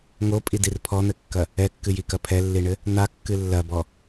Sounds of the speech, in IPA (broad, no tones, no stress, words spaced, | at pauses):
ŋopʼidir pʰɔn̪ɘkːɐ | ɛkːɨjikɐ pʰɛlːiɳɘ | n̪akːɨ lːɐbɔ